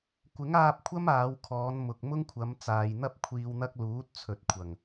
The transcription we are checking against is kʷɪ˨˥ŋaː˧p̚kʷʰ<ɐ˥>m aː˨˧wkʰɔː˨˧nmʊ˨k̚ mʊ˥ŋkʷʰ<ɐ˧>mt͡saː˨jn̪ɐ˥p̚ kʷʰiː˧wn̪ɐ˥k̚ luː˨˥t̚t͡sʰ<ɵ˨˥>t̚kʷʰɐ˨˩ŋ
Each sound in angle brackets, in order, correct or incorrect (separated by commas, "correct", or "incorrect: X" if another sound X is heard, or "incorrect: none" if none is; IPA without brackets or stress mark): correct, incorrect: ɐ˨˧, incorrect: ɵ˨